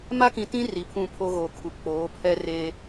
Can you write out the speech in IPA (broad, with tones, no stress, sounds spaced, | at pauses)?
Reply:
m a˦ k ĩ˨ t ĩ˦ r i˨ pʰ ũ˦˨ pʰ o˦ ɣ o˨ kʰ u˨ k͡p oː˨˦ pʰ ɛ˦ r eː˦